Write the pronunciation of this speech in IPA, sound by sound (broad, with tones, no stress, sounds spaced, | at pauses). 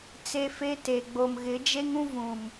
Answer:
t͡s e˦ f e˦ t e˨ ɡ͡b o˨ m ɣ ɪ˨˦ d͡ʒ e˦ ŋ ũ˦ v ũ˨ m